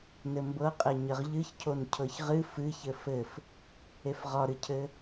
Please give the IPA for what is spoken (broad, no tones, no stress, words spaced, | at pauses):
nɘmbɤ qʼeɲəʁʎɨçcʰon cʰɤçʁɨ fɨçɘ fɘf | efʁɒɾɨcʰɘ